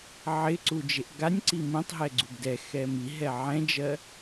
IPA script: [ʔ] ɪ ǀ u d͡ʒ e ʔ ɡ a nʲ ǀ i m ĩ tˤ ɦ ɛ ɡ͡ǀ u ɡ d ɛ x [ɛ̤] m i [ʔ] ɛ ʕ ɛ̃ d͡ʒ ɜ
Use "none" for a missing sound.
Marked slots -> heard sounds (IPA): ʕ, ɛ, ɦ

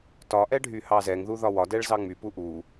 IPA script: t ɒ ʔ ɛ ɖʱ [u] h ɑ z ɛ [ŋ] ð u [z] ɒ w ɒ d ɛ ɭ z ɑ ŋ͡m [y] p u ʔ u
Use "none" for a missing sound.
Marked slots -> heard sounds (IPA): y, ŋ, ð, y

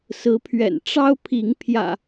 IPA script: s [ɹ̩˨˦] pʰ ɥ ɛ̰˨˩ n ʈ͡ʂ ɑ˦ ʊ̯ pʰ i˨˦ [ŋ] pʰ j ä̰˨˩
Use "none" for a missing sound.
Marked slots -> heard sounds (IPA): ɹ̩˨˦, ŋ

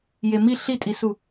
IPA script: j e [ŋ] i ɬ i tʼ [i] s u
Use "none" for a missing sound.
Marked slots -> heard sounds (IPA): m, i

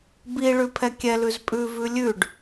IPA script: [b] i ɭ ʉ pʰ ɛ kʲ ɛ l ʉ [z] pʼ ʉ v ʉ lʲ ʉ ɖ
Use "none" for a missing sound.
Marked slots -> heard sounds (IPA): b, z

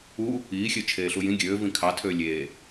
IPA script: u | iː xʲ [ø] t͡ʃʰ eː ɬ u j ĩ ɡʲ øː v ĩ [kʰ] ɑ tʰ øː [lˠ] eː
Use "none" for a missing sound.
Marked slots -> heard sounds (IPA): ø, kʰ, lʲ

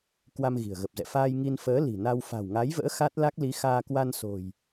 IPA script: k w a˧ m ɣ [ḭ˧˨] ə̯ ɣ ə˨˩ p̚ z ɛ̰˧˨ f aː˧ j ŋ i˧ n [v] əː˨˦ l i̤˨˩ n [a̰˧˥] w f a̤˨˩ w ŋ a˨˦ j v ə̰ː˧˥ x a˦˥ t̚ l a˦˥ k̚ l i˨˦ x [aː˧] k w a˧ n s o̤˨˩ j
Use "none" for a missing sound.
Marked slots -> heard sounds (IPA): i̤˨˩, f, a˧, aː˧

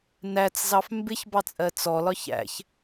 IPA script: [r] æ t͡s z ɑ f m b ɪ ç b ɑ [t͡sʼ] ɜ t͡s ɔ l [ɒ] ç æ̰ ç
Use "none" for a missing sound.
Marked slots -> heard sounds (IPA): n, t͡sʼ, ɒ

